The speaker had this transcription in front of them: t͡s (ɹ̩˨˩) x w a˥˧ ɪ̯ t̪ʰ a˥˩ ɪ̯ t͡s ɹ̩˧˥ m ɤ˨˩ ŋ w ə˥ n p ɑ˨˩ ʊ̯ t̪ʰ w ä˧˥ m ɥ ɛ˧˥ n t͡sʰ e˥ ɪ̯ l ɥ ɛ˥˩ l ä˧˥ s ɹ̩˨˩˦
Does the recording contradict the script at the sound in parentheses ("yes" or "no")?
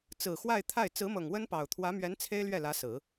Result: no